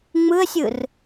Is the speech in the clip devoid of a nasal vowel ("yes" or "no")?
yes